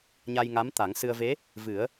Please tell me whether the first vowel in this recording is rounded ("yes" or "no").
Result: no